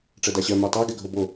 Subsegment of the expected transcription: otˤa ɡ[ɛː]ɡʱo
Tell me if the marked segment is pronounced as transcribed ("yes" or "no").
no